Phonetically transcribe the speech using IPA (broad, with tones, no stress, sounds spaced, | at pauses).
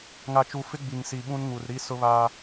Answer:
ŋ a˨ t͡ʃ u˨ f ɪ˦ ɡ͡b i˨ ŋ s i˨ ɓ ũ˦ n ŋ u˨ r ɾ i˦ s ʊ˦ β aː˦